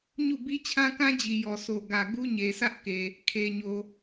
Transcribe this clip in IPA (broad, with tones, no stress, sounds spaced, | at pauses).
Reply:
ɲ u˦˨ b i˦ t͡ɕʰ ã˦ k ã˦ d͡ʑ i˨ j ɔ˨ s o˨ ɡ ä˨ ɡ u˦ ɲ e˨ s ä˦ ʔ k e˨ | kʰ e˨ ɲ o˨